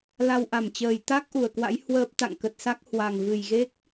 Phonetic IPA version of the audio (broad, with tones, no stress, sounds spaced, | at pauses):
l a˧ w ʔ a˧˩ m t͡ɕ əː˨˩ j t̪ a˦˥ k̚ ʔ u˨˩ ə̯ k w a̰˧˥ j h w əː˦˥ p̚ t̪ a̰˧˨ ŋ k ə˨˩ t̚ s a˦˥ k̚ h w a˨˩ ŋ v ɨ˨˩ j ɣ e˦˥ k̚